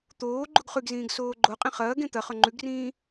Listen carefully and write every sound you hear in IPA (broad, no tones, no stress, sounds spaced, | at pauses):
t̪ oː ɡ͡ǃ u ɡ χ ʉ ɡ z ĩː ɡ s oː ɡ͡ǃ o qʼ ĩ χ ɐː ɡ ẽ t̪ ɐ χ ɵ ŋ͡ǃ ʉ ɡ r ĩː